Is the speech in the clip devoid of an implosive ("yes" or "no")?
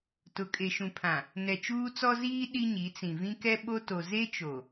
no